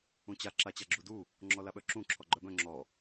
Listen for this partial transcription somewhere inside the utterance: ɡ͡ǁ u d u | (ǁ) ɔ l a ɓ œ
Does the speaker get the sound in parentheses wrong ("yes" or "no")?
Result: yes